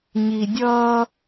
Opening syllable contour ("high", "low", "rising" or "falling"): low